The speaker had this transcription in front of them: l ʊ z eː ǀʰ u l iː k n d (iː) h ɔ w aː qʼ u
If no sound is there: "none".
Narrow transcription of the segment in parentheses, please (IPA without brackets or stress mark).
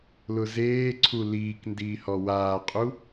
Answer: iː